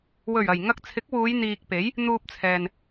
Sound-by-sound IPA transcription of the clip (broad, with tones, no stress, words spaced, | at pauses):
wɵ˨˩ɥɐ˨˩j ŋɐ˧k̚t͡sʰɪ˨˥k̚wuː˨˧j n̪iː˨k̚pe˨˥j | n̪uː˧p̚t͡sʰɛː˨n